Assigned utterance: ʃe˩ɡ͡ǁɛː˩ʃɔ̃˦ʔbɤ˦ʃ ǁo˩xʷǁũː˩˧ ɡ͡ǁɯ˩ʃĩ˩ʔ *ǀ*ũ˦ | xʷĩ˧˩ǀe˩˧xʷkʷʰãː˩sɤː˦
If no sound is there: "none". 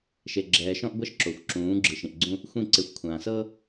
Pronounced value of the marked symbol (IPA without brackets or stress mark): ɡ͡ǀ